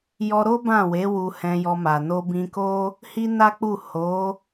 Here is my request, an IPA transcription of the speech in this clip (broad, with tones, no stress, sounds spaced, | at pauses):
j ɔ˧ ɾ o˦ b ã˦˨ w e˨˦ w u˧ h ɛ̃˧ j ɔ˧ m a˨ n o˧ b ĩ˧ k o˦ | h i˦ n a˦ k͡p u˦˨ h o˨˦